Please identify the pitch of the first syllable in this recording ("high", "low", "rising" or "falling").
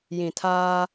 low